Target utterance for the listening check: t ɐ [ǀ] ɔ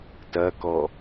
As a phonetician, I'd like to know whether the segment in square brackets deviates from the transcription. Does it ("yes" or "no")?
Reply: yes